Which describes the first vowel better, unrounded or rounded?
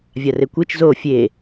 unrounded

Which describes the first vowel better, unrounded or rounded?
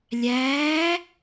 unrounded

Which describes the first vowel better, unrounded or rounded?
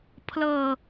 unrounded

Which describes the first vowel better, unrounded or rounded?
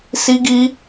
unrounded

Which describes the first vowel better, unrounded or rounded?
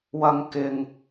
unrounded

